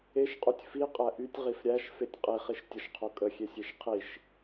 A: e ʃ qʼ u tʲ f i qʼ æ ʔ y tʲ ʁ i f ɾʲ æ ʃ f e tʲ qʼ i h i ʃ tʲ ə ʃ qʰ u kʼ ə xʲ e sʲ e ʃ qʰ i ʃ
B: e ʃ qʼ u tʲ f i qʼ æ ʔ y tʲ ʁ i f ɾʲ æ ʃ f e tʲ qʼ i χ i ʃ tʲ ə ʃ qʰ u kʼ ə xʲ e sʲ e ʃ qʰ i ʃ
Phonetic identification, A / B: B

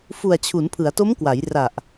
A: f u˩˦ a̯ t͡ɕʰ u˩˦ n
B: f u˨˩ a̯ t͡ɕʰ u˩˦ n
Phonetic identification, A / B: B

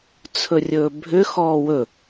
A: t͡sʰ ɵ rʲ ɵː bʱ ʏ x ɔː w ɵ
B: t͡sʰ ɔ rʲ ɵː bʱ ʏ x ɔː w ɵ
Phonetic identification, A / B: A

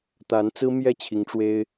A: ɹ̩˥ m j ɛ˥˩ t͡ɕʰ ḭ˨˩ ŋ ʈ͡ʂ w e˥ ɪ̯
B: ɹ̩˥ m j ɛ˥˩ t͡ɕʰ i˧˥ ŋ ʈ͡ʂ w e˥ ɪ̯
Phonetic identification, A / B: B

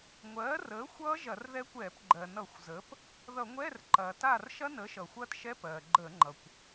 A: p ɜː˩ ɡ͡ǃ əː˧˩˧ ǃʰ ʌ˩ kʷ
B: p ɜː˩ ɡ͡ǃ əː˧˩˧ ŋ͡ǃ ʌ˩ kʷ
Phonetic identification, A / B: B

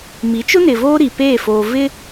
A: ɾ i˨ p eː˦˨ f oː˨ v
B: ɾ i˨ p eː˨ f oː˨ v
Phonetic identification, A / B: A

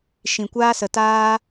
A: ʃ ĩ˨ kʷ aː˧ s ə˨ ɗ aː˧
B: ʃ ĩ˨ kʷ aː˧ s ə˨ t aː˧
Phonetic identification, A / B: B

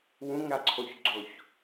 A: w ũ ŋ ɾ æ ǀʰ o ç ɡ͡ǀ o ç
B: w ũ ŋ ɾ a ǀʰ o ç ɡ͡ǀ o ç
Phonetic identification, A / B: B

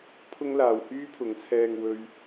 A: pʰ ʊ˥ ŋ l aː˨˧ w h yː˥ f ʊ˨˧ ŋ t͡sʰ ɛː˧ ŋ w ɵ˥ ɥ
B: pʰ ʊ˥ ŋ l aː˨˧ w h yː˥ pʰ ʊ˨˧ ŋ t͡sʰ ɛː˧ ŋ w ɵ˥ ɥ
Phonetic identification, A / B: B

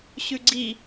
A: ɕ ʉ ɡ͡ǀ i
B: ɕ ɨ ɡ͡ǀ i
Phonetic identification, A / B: A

